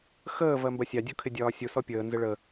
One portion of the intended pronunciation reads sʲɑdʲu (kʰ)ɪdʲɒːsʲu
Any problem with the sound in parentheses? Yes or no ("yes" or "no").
no